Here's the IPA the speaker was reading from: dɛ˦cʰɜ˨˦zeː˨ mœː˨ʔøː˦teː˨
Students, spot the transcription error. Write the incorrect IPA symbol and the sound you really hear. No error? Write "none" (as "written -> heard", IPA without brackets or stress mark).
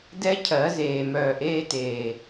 øː˦ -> eː˦